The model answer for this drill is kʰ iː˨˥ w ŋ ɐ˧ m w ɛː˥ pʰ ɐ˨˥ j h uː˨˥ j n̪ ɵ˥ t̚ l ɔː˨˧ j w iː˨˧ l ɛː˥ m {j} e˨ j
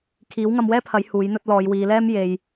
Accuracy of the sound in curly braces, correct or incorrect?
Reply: correct